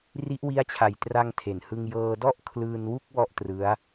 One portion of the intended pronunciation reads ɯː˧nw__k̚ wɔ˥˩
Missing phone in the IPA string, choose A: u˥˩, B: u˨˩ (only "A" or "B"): A